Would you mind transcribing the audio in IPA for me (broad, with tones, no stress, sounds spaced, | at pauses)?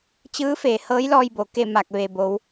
t͡ɕ ɯː˧˥ f eː˩˧ h ɤː˧˥ j l ɔː˧ j b o˩ k e˥˨ m a˧˩ k̚ ʋ e˩ b o˩˧ w